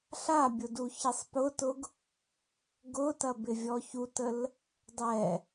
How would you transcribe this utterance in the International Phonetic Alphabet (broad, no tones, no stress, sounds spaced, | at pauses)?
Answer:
ɬ a bʲ ʊ d u ç i sˤ p ʊ t ʊ ɡ | ɡ ʊ t ɐ b ɪ vʲ ɔ ç u t ə l | dˤ ɛ